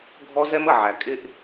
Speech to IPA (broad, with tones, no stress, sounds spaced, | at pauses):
ɡʱ ɔ˦ z ɛ˦ m ə˨ ʕ æ˨ kʼ ɪ˦ ʔ